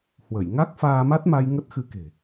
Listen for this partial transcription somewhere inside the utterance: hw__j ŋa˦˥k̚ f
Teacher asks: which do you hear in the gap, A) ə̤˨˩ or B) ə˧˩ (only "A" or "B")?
B